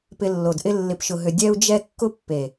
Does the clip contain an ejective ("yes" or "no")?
no